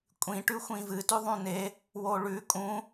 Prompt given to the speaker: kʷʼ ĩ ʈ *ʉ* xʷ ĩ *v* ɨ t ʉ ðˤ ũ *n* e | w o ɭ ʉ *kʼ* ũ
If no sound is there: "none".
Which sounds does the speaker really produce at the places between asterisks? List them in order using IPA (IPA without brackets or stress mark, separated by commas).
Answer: ʉ, v, n, kʼ